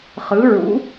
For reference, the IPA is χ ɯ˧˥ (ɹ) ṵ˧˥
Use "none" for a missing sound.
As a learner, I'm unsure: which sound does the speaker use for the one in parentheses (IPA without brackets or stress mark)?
ɹ